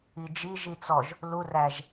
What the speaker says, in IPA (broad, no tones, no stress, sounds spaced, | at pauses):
i d͡ʒ i ʒ i t͡s ɔ ʒ | l u r æ ʒ